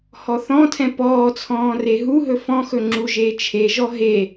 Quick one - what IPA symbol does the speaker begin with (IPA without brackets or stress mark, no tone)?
h